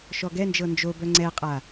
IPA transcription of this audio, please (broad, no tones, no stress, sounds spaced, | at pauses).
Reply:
ʃ ɔ ɡ ɛ n d͡ʒ ɤ n d͡ʒ o b œ ŋ͡ǀ ɛ qʼ a